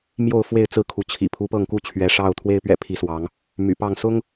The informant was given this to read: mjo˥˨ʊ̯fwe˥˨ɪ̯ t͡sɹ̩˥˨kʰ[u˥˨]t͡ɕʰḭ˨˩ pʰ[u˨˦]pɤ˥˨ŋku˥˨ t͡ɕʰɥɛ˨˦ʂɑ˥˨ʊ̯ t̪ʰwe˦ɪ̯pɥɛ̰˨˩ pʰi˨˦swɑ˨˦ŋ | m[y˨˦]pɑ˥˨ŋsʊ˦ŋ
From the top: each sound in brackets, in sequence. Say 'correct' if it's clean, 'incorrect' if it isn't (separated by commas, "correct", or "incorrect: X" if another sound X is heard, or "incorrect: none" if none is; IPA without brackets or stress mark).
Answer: incorrect: u˨˦, correct, incorrect: y̰˨˩